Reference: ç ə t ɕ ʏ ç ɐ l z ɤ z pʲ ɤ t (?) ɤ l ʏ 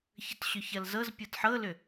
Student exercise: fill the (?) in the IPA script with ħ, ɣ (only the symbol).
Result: ħ